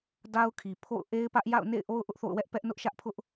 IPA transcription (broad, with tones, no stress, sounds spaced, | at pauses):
d a˦ ʊ̯ kʰ i˨ pʰ o̰˦˨ ʊ̯ ʔ e˦ ɪ̯ p ä˦ ʔ j a̰˦˨ ʊ̯ n ḛ˦˨ ɪ̯ ʔ o˦ ʊ̯ ʔ ʊ˦ ʔ θ o̰˦˨ ʊ̯ w ɛ˦ ʔ p ɛ˦ ʔ n ʊ˦ ʔ ʃ ä˦ ʔ pʰ ʊ˦ ʔ